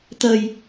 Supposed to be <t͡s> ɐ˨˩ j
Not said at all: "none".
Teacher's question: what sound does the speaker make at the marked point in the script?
t̪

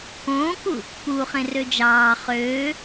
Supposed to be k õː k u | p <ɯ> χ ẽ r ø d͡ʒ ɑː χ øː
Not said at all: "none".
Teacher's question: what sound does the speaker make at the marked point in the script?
u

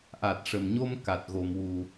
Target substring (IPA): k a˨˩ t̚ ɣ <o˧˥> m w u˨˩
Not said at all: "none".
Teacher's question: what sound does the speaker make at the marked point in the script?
o˨˩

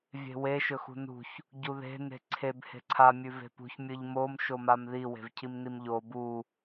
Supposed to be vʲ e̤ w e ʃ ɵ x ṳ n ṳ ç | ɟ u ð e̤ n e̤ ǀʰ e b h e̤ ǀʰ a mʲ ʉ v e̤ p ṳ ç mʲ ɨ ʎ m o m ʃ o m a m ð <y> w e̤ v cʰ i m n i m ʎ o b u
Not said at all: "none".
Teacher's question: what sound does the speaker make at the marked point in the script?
i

